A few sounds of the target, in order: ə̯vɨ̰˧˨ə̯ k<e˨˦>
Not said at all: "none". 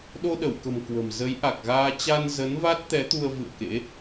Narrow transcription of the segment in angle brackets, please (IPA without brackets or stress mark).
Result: ḛ˧˥